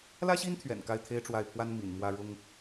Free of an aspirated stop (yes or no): no